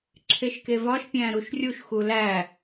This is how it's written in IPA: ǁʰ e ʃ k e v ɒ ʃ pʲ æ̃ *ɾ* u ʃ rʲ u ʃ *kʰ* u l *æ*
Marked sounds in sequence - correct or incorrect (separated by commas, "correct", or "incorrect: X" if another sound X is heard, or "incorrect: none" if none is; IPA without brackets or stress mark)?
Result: correct, incorrect: x, correct